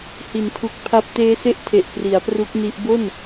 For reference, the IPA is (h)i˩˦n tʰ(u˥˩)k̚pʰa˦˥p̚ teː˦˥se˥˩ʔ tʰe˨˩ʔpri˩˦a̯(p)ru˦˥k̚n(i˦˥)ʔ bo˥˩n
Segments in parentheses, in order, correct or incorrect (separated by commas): correct, incorrect, correct, correct